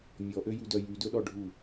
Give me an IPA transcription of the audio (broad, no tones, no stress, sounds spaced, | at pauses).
mʲ ɔ ʔ ø j ʉ d œ j y d ɵ ɗ ɔ ɖʱ u